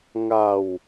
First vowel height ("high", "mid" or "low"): low